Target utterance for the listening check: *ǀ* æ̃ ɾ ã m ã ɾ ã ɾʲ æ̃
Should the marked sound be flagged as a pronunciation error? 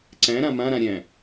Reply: no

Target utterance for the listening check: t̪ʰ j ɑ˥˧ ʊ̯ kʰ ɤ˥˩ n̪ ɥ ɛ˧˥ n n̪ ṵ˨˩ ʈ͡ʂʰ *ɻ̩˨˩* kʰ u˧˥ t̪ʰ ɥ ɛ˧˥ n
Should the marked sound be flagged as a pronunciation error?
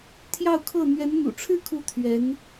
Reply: yes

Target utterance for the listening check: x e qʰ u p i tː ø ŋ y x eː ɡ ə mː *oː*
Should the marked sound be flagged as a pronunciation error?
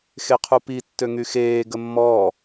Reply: yes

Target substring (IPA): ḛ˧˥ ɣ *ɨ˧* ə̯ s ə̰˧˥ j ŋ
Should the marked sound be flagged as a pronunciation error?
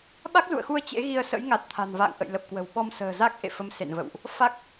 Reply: yes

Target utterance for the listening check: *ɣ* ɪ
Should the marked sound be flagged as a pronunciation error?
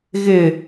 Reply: no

